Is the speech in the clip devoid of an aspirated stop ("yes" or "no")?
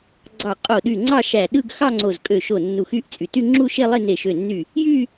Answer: yes